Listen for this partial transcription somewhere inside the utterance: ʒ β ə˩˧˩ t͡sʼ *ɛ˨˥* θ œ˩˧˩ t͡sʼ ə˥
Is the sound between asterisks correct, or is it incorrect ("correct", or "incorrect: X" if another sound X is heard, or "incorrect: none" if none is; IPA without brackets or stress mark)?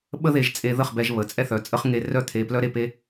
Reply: incorrect: ɛ˥